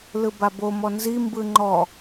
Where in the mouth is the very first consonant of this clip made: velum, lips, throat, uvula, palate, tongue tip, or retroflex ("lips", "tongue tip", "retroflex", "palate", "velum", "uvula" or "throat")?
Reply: tongue tip